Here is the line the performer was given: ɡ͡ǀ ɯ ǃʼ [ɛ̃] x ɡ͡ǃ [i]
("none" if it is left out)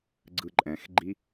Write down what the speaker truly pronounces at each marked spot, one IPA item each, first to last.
ɛ̃, i

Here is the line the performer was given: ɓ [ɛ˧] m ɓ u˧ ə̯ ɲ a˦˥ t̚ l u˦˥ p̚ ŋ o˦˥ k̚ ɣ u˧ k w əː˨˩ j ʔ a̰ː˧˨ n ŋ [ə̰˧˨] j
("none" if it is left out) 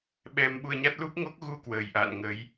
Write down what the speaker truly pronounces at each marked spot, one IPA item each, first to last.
ɛ˧, ə˨˦

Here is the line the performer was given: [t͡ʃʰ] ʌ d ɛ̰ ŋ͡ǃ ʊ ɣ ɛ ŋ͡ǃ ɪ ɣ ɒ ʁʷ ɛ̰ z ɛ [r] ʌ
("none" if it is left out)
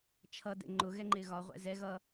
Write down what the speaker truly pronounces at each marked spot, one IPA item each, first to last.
t͡ʃʰ, ɣ

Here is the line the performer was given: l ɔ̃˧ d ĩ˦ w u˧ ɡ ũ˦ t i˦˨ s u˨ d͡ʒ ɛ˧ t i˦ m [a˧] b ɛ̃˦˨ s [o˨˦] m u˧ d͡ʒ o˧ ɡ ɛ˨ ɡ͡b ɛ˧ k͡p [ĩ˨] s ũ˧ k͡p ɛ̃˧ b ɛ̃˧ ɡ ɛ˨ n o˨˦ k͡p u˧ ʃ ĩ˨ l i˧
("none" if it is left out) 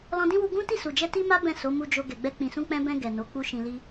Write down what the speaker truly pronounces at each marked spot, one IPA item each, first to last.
a˦, o˨˦, ĩ˨

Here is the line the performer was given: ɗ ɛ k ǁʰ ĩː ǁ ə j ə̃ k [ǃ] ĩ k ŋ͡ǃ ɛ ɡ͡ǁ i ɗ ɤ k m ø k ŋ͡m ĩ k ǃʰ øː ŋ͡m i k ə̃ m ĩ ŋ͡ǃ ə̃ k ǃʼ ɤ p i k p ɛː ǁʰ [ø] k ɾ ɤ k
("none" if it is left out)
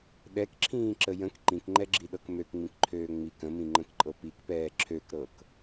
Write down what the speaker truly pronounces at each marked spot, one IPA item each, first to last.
ǃ, ø

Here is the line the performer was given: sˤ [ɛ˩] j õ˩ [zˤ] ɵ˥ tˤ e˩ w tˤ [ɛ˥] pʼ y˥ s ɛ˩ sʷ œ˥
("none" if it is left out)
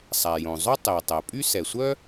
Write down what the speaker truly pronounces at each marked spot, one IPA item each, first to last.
æ˩, zˤ, ɛ˩

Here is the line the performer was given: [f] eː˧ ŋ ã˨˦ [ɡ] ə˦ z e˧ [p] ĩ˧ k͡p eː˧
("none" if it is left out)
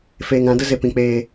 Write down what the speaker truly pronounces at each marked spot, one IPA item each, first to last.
f, d, p

